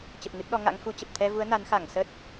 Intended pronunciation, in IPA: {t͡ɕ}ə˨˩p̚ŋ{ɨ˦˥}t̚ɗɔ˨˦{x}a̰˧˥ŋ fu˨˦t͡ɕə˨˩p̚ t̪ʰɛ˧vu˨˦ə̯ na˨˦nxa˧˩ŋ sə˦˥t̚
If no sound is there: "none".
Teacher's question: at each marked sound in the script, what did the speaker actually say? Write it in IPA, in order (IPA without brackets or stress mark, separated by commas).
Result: t͡ɕ, ɨ˦˥, ŋ